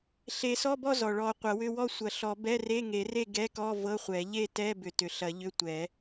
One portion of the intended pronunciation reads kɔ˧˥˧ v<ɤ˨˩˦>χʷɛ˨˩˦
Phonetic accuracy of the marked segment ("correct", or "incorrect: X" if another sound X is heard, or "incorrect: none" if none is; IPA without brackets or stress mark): incorrect: ɤ˧˥˧